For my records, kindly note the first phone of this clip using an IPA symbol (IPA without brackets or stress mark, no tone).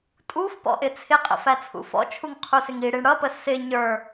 tʼ